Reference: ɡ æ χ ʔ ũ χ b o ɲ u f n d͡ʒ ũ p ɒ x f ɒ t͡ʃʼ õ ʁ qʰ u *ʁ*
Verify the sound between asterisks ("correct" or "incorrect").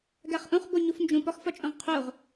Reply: correct